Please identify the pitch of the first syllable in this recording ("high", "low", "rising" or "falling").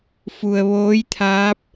low